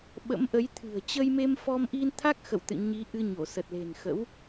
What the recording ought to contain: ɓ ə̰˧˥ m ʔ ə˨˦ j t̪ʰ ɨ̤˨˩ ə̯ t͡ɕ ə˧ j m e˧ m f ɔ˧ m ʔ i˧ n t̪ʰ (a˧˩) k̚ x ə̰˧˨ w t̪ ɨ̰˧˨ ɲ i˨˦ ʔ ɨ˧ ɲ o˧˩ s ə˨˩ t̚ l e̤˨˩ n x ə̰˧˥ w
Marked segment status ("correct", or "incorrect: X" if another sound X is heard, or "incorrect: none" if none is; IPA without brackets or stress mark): incorrect: a˦˥